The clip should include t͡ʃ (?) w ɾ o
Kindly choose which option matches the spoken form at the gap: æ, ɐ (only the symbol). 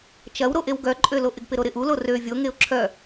ɐ